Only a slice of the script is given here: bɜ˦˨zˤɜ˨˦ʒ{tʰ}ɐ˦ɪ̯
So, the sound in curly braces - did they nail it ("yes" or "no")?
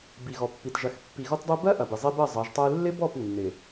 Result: no